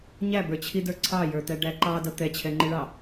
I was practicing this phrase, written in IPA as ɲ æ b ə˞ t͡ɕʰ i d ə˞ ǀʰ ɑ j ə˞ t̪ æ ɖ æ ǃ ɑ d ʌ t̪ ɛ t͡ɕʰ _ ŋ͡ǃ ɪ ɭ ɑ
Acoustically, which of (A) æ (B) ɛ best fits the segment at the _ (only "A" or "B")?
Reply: B